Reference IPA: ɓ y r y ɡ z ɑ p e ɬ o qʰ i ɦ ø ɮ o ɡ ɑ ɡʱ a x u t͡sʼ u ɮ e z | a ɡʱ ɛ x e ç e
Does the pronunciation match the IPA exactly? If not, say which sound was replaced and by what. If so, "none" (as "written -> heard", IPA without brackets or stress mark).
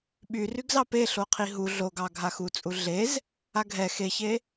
ø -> u